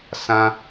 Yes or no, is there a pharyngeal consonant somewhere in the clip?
no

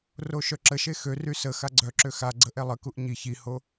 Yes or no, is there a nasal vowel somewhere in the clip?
no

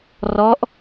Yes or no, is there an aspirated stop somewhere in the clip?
no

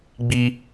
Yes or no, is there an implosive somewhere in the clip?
no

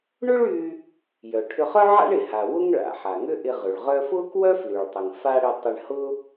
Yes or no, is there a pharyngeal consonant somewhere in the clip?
yes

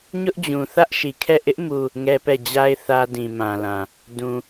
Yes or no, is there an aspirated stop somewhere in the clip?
yes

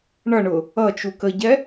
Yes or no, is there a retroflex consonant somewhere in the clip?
yes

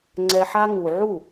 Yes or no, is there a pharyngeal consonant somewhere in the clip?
yes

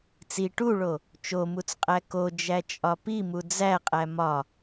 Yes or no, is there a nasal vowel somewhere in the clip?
no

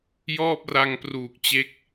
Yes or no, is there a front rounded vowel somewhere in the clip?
no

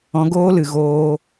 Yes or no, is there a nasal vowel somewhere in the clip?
yes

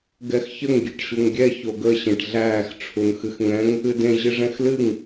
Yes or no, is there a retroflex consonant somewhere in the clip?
yes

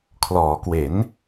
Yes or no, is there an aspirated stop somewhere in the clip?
yes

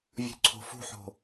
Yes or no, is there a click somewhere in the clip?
yes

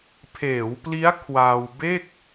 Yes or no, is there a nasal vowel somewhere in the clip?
no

